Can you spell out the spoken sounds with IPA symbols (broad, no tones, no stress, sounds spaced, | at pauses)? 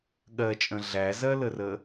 ɠ ɜ t͡ʃʼ ə̃ ɮ æ z ɜ l ə r ə